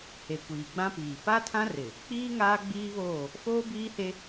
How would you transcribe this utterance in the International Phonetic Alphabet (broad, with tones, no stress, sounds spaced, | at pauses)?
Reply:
h e˨ kʷ iː˨ ɡ͡b ã˦ p iː˨ p a˦ tʰ ã˦ r ɪ˨ | k͡p iː˦ ŋ aː˦ ɡ͡b iː˦ β oː˦˨ | f oː˦ b iː˦ h e˦